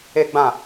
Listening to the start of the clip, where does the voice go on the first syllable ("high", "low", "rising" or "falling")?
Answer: high